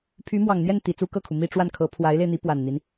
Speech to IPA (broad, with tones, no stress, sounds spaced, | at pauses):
pʰ y˧˥ m w ɑ˨˩ ŋ n̪ j ɛ˥˩ n t̪ i˨˩ t͡s u˥ k ɤ˥˩ kʰ u˩ m i˥˧ ʈ͡ʂ w a˥˩ n kʰ ɤ˧˥ pʰ w a˧˥ ɪ̯ l e˧ ɪ̯ n̪ i˧˥ p w a˨˩ n n̪ i˦ n